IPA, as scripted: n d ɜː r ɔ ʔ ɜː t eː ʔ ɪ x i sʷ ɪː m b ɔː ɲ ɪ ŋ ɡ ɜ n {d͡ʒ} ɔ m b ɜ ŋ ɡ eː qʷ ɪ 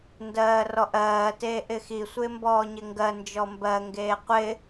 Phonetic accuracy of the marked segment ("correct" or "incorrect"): correct